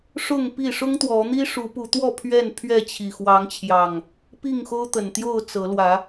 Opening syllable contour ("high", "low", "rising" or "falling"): falling